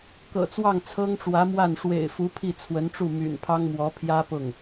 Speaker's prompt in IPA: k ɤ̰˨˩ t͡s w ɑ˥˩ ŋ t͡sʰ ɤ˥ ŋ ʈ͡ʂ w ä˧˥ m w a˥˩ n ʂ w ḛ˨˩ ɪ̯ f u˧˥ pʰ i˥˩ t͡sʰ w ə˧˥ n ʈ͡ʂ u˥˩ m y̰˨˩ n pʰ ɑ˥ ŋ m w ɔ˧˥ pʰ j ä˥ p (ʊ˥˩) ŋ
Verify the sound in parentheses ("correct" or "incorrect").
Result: correct